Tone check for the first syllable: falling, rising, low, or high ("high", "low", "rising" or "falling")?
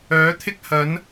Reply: rising